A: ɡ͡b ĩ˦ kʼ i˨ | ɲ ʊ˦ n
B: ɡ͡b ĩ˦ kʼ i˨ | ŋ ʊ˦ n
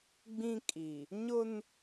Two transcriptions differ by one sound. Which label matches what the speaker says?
A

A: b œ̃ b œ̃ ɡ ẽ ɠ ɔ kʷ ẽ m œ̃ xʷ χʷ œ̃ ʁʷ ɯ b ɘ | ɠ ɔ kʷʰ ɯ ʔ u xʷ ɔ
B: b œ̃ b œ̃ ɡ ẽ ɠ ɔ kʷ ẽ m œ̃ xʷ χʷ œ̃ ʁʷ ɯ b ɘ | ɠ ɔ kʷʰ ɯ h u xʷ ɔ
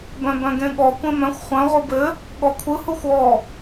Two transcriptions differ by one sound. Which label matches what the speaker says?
B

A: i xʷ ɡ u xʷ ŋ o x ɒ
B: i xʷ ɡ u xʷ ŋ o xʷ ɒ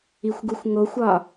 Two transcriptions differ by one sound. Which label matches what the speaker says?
B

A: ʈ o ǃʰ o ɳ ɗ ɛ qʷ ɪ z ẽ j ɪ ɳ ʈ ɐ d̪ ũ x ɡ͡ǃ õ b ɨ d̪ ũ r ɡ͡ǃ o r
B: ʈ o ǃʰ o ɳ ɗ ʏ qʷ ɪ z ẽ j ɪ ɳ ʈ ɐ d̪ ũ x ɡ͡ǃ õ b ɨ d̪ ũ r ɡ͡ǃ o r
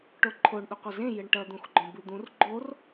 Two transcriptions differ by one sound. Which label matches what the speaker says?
B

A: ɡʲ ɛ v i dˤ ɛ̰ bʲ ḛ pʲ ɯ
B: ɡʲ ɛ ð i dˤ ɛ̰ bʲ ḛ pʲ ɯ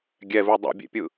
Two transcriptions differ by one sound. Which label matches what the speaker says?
A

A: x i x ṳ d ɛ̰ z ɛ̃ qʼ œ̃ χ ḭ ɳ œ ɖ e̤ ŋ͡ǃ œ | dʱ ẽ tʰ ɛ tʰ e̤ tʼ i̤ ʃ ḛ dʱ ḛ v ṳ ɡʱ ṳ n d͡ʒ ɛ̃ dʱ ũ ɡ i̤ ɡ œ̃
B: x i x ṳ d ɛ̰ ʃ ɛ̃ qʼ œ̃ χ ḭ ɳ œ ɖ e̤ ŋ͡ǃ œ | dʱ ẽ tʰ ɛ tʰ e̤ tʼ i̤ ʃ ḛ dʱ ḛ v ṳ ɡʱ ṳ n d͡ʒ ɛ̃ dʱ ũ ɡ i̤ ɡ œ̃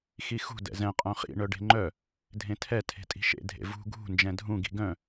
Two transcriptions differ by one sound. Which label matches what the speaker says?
A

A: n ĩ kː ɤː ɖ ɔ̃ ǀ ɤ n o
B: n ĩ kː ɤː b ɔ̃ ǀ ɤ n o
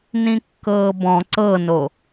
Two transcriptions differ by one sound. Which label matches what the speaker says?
B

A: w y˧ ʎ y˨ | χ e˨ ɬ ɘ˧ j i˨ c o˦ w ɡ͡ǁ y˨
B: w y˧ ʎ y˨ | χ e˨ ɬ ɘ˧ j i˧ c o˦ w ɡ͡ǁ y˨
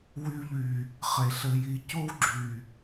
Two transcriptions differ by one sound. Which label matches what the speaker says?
B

